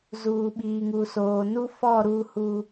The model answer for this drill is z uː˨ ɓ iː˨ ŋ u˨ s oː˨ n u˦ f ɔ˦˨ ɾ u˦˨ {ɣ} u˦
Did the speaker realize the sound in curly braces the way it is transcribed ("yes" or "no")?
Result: no